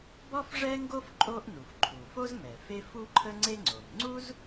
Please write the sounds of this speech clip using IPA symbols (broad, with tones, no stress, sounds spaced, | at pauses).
b ɔ˥ f ʐ ɛ˥ ŋ ɡ o˥ f ǃʼ o˥ ʔ n u˩ f ǃʰ u˩ f o˥ z m ɛ˩ f e˥ f u˥ ǃʰ ə˥ ŋ͡ǀ e˥ ŋ͡ǀ o˩ m ŋ͡ǀ u˥ z